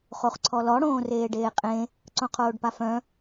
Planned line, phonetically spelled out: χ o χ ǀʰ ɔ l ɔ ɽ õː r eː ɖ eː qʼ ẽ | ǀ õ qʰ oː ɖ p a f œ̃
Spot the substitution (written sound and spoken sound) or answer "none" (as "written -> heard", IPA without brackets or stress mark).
none